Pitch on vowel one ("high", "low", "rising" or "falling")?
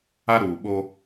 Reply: high